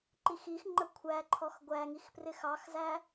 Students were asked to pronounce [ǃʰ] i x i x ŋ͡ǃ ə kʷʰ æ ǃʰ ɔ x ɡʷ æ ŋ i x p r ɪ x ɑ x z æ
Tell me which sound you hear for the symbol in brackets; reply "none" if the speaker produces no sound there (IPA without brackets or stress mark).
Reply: ǃ